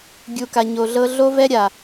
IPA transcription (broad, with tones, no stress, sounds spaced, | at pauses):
ɡʲ u˨ k a˨ ɲ o˨ ɮ ɤ˦ ɮ o˦ v ɛ˦ ɾʲ a˨